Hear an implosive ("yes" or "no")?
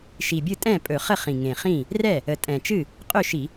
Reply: no